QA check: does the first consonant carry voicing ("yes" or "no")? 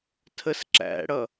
no